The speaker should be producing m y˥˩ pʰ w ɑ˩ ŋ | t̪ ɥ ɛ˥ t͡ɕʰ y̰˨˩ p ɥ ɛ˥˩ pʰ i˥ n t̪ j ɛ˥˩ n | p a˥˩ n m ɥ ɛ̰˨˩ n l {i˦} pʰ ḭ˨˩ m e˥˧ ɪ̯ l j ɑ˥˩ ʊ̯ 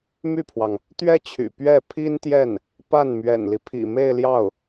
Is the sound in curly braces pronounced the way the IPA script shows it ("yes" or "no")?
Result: yes